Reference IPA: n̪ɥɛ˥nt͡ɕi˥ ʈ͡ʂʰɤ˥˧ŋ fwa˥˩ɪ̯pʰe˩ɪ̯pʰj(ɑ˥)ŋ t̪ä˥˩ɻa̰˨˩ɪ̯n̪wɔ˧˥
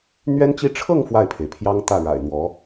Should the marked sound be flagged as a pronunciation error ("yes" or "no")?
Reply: no